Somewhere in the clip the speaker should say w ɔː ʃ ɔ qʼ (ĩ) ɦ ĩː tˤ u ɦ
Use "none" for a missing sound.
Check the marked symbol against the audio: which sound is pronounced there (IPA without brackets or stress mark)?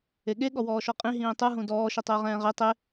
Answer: ĩ